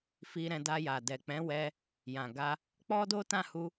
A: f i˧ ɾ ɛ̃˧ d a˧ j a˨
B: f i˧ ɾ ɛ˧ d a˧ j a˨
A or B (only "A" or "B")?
A